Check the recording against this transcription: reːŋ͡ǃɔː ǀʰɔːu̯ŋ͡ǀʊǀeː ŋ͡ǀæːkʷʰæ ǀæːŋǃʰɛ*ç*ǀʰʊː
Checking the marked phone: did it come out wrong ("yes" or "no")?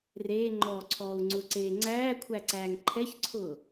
no